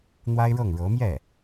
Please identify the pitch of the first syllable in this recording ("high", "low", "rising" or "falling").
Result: high